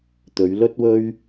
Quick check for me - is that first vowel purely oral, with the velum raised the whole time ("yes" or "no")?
yes